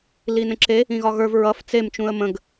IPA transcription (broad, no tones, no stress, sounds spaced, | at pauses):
l i n ə̃ ǁ e | ĩ ɣ ɒ ɣ ə˞ v ɹ ʌ f t͡s e m t͡ʃ ũ ə̯ m ə̃ ɡ